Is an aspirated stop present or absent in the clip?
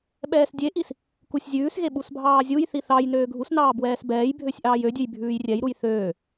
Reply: absent